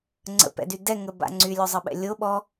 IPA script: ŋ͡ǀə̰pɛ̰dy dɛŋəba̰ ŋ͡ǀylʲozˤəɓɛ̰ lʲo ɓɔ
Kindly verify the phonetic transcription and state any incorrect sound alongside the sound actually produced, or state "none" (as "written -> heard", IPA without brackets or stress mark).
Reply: none